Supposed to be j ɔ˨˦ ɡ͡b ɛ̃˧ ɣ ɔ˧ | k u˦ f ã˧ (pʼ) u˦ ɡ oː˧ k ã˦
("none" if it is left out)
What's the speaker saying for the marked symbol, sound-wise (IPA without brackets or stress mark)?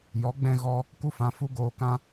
f